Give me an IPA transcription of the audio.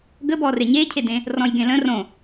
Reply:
ɡəbɔ reɲecʰedẽ | rɔ̃jɡẽlə̃ rõ

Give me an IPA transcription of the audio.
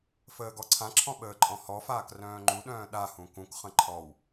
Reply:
fəːɡɔǀʰãǁʰɔ̃ ɓəːǃʼɔ̃hɔfaːk rœ̃ːŋ͡ǃuɗœ̃ː ɗahũ kũkχə̃ ǃʰɔw

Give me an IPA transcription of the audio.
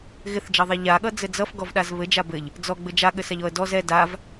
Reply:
ɣɪθd͡ʒʌðˤɛ ʎaɠʌd͡zɘ d͡zʌfɡɔvɗaz βɘd͡ʒa bɘʎ | d͡zɔɡ͡bɘ d͡ʒaɠɘsaʎɔə̯ dɔz ɛ dav

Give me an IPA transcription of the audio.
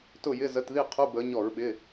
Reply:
tʊ˥˩jɪ˧˥˧ zə˧˥˧t ði˥˩ qʰu˧˥˧bəː˨˦ ɲɔ˧˩˧ɹɓɪ˩˧˩

